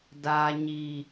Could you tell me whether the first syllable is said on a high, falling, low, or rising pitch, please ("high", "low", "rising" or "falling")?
low